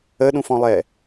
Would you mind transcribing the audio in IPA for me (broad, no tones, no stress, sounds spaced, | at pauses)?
ə ɗ ũ f ɔ̃ lˠ ɛ